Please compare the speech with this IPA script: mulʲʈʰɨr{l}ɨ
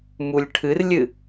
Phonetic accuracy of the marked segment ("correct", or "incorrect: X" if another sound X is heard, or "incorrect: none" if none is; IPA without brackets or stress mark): incorrect: lʲ